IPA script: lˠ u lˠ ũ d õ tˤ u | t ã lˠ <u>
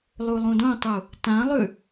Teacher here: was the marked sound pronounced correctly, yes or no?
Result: no